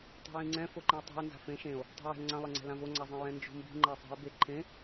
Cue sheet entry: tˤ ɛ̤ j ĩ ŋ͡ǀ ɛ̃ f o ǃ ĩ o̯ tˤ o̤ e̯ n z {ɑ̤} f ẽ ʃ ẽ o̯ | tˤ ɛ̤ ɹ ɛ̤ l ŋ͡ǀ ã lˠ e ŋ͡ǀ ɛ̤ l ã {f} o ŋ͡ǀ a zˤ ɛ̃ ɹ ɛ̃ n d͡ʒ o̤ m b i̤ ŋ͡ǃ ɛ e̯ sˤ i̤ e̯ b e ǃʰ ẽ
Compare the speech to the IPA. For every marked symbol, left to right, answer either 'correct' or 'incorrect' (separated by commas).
incorrect, incorrect